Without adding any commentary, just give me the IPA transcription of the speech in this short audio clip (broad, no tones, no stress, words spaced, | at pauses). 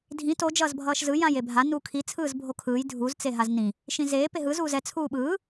dʱĩ to d͡ʒʌːzbʱʌːʃzɯ jãjebʱa nuːkʰi t͡sʰɯːzbʱokʰɯːj dʱuz t͡seɦaznĩ | ʃĩzeː peɦɯz uːzɛ t͡sʰuːɓɯː